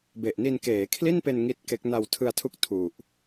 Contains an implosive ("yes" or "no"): no